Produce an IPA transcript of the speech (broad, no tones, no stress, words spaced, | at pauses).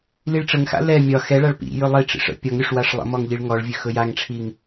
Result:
liɭʈ͡ʂəŋxa̰ lɛ mʲɒ xɛɭaɭ pḭ jɵlˠiʈ͡ʂḭʂ ə̰ pʲɒŋɾʲʊʂ waʂlˠə̰mɔŋ ʎiɭŋɔɭvʲɵ xɵjaŋʈ͡ʂʰiŋ